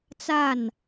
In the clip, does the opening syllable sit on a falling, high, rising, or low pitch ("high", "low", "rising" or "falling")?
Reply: falling